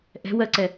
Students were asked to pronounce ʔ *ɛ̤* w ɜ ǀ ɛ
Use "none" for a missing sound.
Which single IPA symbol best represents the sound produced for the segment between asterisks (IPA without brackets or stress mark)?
ɛ̤